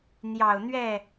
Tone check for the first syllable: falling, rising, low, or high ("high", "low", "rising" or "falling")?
low